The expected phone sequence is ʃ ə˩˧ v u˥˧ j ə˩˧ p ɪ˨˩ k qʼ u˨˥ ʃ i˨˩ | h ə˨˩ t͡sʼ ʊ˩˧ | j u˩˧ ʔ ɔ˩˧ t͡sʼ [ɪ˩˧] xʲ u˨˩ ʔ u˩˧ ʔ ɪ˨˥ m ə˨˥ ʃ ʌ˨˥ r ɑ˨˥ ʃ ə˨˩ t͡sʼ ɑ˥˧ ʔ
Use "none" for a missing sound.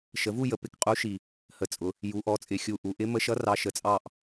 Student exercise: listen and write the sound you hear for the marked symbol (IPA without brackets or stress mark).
ɪ˨˩